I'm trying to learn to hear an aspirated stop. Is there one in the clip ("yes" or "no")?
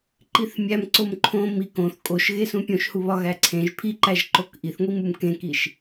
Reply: yes